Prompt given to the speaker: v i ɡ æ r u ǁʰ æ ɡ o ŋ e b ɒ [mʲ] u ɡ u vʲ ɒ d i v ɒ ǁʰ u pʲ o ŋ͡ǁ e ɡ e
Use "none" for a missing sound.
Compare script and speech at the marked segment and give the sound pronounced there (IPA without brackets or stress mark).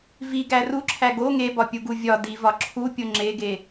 pʲ